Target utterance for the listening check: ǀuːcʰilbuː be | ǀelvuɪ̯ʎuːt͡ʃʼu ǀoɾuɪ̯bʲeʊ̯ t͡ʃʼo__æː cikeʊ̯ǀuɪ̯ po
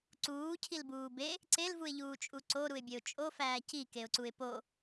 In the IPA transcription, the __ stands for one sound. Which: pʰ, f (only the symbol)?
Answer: f